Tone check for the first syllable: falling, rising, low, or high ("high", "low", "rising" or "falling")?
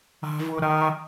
high